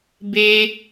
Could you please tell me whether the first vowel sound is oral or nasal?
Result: oral